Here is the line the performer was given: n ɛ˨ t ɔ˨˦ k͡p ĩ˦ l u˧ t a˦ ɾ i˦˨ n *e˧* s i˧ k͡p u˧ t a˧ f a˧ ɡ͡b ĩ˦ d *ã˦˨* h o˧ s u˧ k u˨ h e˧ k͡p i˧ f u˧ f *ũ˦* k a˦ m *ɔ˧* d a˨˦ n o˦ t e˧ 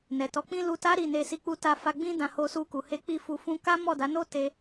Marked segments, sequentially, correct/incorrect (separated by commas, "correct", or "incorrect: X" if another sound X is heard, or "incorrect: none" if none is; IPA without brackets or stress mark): correct, incorrect: ã˧, correct, incorrect: ɔ˦˨